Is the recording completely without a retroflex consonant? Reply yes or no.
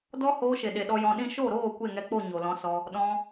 yes